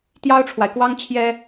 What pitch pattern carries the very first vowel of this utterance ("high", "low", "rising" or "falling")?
high